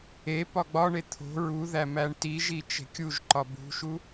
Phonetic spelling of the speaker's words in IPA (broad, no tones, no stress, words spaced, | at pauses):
epɒ ɡ͡bɒɳe t̪ʰo̤ ɹuðæ mæɳtiʒi t͡ʃe̤kʲuʒǃɒ bṳʃu